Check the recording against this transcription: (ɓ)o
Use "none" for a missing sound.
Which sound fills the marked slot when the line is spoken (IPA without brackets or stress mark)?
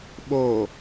ɓ